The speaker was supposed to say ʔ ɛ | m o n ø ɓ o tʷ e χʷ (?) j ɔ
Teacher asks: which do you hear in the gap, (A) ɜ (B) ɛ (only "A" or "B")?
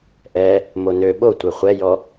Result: B